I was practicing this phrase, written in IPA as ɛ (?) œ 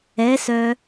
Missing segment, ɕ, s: s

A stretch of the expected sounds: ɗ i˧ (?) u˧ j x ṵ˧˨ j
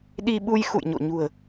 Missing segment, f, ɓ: ɓ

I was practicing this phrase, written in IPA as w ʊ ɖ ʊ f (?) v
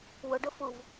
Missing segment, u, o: u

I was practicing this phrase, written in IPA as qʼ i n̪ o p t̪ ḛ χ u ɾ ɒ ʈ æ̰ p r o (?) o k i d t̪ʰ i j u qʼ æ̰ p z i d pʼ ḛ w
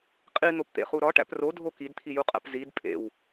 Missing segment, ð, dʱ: dʱ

